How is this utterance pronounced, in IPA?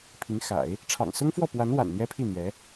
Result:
pʰi˧˥ŋxa̰˨˩˦ɪ̯ | ʈ͡ʂʰɑ̰˨˩ŋsʊ˥ŋfwɔ˥˩pwa˧˥n wa̰˨˩nn̪jɛ˥pʰi˥˩ n̪jɛ˧˥

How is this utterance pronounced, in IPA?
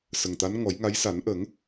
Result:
sə˨˩ŋt̪a˧˥n ŋɔ˨˩˦jŋa˧˥j sa˨˩˦n ʔə˨˩˦ŋ

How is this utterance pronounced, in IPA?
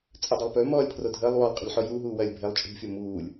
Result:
t͡sʼədˤɐlˠpø mɔːlʲpʰrodʱəːlˠ wɔlˠqʼə̤lʲħo ju ɦuːwɐːlʲbʱelˠ t͡ʃʼṳfʲo muːlʲ

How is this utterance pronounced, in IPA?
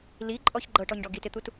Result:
liǃʼɔç ɡ͡ǃɤʈɔɲɖɔ ɡitɪt̪ut

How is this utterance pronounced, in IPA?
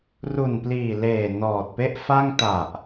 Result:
ru˨˩npliː˨˩leː˨˩ nɔː˨˩t̚pe˥˩ʔfa˥˩ŋ ta˨˩ʔ

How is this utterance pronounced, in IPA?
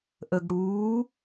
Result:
ʔəɡ ɽuː

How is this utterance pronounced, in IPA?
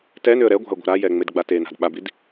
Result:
tɛ nʏə̯ɾɛɡʷa̤ə̯ ɡʷa̤ɾajɛ ŋ͡medɡ͡batena̤d ɓabid

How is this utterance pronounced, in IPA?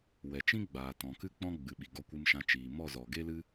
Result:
wɛ˨t͡ʃĩ˦ ɡ͡baː˨tɔ̃˨kɨ˦k͡pɔ̃˦ ɡ͡bɨ˨ɓi˨ ɡɔ˧kʷɨ˧mʃã˧t͡ʃiː˨ mɔ˦˨ zɔ˨ɡe˦lɨ˦

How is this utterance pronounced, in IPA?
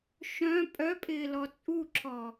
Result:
ʃœ̃ pʼœpʼɪː lɔt͡sʼuǁʰɔ

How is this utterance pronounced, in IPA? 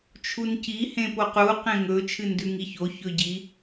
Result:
t͡ʃʰunci hẽpoqu qẽŋɵ t͡ʃʰɨndʉŋiço çɵɟi

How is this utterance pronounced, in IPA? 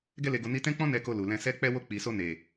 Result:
ɡɛ˧le˨ɡo˨ ni˧tɛ̃˦k͡pɔ̃˦ nɛ˧ko˧lu˨ lɛ̃˧sɛ˦ k͡pɛ˧wo˧ k͡pi˨so˧ ne˨

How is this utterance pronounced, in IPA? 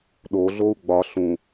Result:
ɗoɮou̯ ɡ͡bɒ ɬũ

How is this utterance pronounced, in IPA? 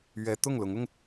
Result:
ɥɛ˧˥ t̪ʊ˥˩ŋlʊ˧˥ŋʊ˧ŋ

